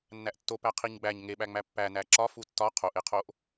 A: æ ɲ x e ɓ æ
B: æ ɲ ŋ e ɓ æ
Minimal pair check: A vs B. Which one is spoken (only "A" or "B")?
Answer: B